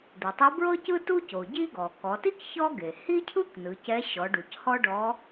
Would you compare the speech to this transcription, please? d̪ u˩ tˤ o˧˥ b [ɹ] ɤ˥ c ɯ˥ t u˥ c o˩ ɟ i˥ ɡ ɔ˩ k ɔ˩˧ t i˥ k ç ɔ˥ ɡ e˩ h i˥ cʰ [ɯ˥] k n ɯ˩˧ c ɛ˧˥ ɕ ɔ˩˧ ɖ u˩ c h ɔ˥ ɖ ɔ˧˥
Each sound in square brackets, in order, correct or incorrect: correct, correct

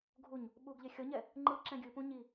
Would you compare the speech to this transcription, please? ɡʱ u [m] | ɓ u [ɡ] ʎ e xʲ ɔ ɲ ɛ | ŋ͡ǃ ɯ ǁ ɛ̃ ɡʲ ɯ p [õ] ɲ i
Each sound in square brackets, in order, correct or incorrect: incorrect, correct, incorrect

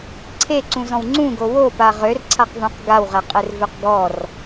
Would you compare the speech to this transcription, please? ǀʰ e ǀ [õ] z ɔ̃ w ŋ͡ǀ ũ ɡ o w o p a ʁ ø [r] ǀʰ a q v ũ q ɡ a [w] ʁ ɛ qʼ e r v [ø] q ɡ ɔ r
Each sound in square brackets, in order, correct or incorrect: incorrect, correct, correct, correct

